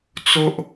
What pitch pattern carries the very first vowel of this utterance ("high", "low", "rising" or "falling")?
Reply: high